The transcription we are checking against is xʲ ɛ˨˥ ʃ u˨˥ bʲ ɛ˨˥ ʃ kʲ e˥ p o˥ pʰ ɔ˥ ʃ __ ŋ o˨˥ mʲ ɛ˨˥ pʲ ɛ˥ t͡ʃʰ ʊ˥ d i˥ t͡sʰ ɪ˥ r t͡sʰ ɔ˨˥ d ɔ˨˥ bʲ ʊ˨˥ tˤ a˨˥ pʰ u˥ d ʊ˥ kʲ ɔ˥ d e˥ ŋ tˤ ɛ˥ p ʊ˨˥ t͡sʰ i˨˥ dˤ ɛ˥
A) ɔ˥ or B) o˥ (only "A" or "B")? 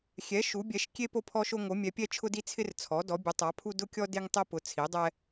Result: B